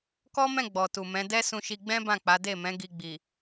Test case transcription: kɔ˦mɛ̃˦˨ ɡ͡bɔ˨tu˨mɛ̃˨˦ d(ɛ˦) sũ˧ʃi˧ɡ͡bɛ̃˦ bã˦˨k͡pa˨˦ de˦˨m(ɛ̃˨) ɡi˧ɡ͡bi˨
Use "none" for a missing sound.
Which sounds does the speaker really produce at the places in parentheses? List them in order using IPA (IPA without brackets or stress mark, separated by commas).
ɛ˦, ɛ̃˨˦